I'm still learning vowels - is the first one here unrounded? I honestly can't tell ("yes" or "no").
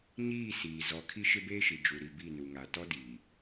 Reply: yes